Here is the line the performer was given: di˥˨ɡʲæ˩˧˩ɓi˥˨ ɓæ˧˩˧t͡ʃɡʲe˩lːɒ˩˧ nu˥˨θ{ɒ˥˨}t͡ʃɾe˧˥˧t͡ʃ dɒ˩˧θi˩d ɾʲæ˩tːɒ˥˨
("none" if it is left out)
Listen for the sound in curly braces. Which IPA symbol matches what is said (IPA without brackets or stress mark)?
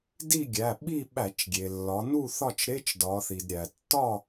ɒ˥˨